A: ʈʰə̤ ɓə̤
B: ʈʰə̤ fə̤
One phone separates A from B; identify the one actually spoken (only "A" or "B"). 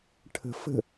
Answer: B